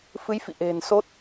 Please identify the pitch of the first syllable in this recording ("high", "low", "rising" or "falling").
rising